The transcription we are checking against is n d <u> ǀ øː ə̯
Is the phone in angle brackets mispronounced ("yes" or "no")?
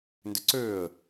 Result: yes